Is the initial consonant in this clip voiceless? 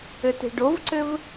yes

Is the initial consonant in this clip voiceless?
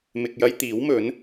no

